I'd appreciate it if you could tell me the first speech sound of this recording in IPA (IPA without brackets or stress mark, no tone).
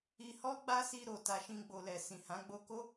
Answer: i